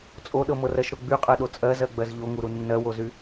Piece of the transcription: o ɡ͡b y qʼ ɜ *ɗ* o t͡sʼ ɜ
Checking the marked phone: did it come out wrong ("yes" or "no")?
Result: no